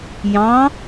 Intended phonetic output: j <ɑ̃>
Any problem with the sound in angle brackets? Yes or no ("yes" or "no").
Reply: no